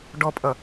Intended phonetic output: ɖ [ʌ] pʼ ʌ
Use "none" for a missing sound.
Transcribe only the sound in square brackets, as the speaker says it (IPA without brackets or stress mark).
ɔ